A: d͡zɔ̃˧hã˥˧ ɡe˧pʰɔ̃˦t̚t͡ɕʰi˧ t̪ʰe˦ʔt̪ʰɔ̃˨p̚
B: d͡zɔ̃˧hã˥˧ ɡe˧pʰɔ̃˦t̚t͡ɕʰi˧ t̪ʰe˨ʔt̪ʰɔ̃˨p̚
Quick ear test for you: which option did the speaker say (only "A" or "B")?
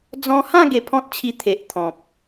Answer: B